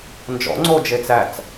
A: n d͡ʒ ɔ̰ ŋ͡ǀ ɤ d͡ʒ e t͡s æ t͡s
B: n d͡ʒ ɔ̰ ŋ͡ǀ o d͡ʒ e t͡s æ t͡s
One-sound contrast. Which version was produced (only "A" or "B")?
B